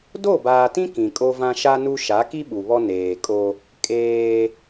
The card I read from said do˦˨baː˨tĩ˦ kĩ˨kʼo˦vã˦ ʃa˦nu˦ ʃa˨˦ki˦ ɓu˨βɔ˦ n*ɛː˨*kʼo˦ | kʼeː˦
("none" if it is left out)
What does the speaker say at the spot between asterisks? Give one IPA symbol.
eː˨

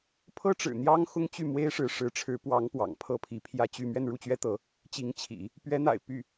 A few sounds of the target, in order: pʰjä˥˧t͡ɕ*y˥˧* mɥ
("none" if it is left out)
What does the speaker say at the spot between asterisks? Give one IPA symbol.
y˥˧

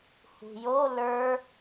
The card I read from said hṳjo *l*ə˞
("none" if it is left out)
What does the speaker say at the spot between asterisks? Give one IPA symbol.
l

